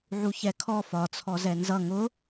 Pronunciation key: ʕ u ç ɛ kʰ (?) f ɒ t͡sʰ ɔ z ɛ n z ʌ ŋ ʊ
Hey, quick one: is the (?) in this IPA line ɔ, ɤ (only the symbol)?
ɔ